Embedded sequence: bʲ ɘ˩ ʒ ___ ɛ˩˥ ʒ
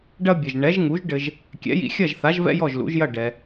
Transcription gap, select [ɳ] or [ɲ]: ɳ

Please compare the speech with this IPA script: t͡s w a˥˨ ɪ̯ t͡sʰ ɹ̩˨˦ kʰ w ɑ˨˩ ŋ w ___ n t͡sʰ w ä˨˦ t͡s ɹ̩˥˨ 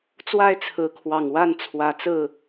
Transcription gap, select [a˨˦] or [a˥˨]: a˥˨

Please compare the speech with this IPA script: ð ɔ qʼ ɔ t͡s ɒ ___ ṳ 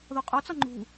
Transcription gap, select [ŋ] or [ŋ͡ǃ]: ŋ͡ǃ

